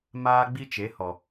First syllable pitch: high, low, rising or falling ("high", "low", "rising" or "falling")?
high